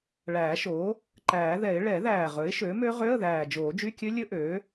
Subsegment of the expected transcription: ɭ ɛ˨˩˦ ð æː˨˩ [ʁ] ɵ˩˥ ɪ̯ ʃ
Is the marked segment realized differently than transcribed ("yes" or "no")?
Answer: no